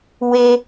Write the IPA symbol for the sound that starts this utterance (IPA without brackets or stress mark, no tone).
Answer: w